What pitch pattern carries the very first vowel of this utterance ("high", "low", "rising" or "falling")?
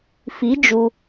rising